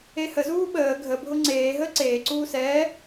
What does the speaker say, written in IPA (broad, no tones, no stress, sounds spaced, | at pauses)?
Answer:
e h ə z uː ɓ əː ɡʱ ə bʱ ʊ ŋ͡ǀ eː ɦ əː ǀ eː ǀ uː s ɛː